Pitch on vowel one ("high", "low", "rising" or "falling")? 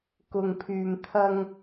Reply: low